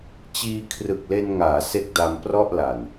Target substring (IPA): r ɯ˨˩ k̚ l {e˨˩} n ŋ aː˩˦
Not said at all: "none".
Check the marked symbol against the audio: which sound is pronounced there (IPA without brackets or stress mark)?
e˧